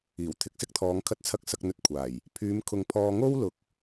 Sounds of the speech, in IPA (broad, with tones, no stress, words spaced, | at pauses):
iː˨˩w t̪ʰɪ˨k̚sɪ˥k̚t̪ʰɔː˨˧ŋ kʰɐ˧t̚t͡sʰɐ˧k̚ sɐ˧k̚n̪ɵ˧t̚ kʷʰaː˨˩j | pʰyː˨˧mkʰʊ˨ŋ pʰɔː˧ ŋo˥wlʊ˨˥k̚